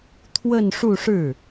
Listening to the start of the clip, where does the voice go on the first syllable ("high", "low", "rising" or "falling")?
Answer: falling